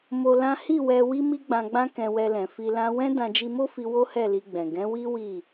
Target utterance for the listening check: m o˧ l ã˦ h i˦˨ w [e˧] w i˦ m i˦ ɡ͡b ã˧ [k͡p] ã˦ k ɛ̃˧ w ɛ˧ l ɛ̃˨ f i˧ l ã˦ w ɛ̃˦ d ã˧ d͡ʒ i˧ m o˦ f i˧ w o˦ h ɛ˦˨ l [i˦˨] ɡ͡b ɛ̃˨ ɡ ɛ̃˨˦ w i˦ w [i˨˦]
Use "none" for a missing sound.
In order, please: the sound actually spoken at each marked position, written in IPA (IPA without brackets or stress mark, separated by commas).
ɛ˧, ɡ͡b, i˧, i˦˨